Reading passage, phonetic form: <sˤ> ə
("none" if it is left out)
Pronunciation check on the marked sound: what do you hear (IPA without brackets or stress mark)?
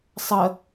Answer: sˤ